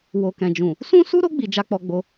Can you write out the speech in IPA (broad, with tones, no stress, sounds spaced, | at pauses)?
w o˨ k ɛ̃˨ d͡ʒ ũ˨ | s ũ˦ s u˦ ɾ o˦ ɡ͡b i˧ d͡ʒ a˦ k͡p ɔ˧ ɡ͡b o˧